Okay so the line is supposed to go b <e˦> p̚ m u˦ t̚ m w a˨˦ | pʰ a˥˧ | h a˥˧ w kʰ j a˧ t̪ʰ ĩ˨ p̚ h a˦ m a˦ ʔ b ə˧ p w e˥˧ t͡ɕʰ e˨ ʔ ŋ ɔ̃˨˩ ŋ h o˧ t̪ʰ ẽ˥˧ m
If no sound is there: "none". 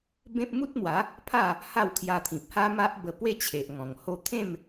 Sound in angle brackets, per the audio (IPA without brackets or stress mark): ẽ˦